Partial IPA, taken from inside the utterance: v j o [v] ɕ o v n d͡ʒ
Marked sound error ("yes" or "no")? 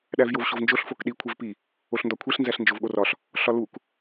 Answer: no